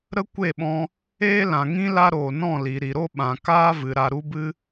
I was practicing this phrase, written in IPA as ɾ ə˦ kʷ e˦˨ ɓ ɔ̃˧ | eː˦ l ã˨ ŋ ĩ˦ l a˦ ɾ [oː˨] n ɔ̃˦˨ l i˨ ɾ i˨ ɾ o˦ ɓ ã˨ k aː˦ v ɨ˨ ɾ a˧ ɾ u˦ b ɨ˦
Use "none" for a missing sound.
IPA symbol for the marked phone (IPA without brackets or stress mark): oː˨